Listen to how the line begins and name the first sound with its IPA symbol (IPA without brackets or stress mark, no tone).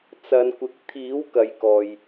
t͡s